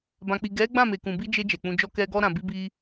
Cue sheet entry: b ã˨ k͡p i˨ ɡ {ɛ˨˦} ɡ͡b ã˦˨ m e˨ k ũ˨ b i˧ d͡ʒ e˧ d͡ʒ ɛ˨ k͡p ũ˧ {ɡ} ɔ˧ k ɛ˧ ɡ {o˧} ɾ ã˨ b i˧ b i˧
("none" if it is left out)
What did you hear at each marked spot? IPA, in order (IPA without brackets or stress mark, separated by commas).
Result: ɛ˨˦, d͡ʒ, ɔ˧